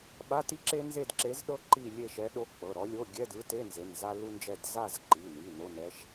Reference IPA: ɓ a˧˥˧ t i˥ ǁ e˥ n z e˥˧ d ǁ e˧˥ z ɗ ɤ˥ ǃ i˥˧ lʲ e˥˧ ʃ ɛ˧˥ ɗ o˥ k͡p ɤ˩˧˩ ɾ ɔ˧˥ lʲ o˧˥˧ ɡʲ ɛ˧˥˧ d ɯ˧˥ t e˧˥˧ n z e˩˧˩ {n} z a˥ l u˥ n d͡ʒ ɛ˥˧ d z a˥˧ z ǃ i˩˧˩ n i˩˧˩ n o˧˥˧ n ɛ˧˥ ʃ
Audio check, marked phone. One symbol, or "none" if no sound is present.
n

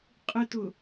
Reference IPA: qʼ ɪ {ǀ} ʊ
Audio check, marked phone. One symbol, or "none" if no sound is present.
t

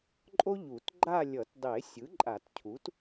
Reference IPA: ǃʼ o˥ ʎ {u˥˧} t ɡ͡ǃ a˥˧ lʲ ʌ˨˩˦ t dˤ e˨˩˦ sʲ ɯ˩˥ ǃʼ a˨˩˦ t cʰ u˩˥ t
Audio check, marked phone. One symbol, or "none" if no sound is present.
u˨˩˦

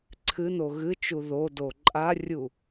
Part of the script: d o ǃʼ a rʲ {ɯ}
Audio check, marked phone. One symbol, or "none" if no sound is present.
u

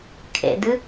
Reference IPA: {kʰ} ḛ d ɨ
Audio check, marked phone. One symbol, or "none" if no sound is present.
kʰ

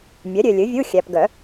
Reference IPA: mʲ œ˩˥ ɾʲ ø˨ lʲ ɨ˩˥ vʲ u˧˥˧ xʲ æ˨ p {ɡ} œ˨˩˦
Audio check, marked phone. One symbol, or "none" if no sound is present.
ɡ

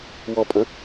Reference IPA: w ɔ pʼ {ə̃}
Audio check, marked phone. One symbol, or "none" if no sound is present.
ə̃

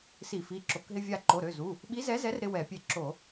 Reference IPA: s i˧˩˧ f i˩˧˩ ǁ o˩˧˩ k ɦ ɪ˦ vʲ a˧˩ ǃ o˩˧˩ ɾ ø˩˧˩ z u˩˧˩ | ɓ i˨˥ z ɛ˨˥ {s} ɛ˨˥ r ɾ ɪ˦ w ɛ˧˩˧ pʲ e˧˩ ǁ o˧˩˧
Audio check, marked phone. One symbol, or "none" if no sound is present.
z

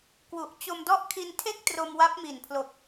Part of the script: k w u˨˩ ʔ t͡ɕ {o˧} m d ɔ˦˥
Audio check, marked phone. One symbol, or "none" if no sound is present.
o˧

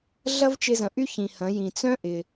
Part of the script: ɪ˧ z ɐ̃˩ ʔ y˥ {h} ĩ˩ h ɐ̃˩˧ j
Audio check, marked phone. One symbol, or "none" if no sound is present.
ç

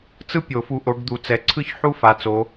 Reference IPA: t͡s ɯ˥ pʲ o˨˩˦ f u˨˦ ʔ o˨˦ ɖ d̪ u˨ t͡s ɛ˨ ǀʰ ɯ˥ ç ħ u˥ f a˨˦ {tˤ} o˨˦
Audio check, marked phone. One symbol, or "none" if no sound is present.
t͡s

